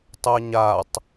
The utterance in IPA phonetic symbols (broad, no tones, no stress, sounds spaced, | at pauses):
tˤ ɜ ɲ a tˤ